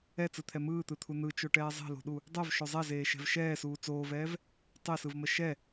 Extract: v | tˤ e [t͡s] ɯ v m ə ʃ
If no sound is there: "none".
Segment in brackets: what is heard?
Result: s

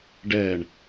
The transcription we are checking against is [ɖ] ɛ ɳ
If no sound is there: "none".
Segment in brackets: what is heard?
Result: ɖ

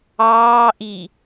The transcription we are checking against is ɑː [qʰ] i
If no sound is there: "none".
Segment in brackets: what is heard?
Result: ʔ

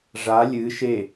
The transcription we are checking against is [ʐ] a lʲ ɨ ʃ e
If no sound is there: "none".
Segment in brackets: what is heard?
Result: ʐ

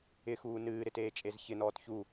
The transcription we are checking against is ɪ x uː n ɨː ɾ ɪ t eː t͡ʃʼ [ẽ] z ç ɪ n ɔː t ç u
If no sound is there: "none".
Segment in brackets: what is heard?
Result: e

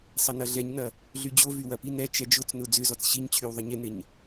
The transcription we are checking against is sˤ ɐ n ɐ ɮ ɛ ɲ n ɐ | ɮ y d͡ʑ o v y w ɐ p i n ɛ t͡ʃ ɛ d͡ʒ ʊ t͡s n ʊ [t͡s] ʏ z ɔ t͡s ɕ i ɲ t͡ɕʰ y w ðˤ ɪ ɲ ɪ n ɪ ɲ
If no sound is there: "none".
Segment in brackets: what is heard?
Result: d͡z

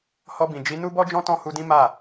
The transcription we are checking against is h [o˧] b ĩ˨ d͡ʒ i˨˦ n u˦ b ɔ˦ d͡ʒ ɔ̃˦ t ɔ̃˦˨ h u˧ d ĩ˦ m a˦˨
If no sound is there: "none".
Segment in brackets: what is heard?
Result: ɔ˧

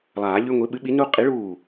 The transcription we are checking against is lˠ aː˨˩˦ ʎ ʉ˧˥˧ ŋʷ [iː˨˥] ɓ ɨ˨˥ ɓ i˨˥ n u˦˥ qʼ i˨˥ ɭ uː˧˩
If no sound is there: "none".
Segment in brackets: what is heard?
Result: i˨˥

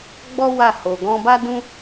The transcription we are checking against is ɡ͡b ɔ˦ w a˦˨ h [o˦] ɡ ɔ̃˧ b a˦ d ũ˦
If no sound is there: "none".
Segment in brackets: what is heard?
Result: o˧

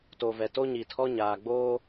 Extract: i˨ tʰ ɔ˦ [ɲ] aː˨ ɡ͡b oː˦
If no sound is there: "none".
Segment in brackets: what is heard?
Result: ɲ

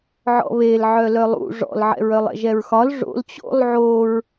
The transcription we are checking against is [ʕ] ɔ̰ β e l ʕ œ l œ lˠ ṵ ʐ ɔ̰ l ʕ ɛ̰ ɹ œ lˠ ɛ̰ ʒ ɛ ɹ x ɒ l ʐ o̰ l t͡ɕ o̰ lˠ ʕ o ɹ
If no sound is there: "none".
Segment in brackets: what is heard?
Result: ʕ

